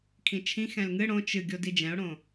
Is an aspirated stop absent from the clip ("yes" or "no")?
no